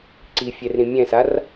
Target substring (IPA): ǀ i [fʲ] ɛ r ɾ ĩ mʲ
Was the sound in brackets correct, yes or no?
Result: yes